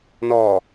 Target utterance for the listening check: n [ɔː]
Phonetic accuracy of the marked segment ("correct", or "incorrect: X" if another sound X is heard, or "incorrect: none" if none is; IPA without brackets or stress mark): correct